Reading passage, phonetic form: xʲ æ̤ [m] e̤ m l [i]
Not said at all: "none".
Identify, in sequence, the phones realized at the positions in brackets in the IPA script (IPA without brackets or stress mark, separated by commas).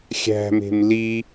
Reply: m, i